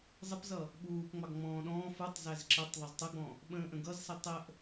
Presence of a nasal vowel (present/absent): present